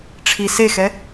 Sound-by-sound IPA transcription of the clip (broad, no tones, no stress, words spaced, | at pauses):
ʈ͡ʂʰi sexɛ